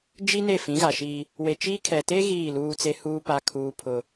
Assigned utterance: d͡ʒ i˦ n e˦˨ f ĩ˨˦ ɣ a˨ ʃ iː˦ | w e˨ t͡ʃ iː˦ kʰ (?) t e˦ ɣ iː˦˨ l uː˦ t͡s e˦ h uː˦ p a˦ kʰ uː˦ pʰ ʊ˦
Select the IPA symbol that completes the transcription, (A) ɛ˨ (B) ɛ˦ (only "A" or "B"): A